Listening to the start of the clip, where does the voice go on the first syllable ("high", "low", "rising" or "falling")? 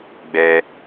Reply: high